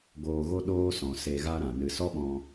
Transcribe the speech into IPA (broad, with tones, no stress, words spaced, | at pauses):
ɡoː˧ɣo˦ ɗoː˦sɔ̃˨ se˧ɣa˦ɾã˨ nɨ˨sɔ˦ɓɔ̃˧